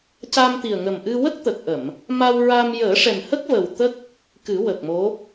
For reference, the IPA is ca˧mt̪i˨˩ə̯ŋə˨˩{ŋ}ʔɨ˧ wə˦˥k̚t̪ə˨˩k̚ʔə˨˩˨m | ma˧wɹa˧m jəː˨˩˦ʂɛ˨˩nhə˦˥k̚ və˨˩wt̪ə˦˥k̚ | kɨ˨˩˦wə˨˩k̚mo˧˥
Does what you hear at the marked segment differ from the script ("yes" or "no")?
yes